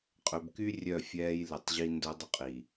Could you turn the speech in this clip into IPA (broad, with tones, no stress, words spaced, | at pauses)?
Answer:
qʼø˨bky˦ rʲœ˦˨fʲɛː˦j lɛ˨tˤʑi˦ ndœ˦ dˤɵ˦qʼi˨